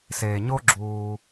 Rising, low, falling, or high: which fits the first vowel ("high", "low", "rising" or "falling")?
low